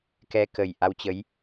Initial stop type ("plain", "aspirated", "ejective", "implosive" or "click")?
plain